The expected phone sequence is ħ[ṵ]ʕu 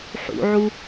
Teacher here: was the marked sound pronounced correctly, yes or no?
yes